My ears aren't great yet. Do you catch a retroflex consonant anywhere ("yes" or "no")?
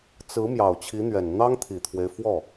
no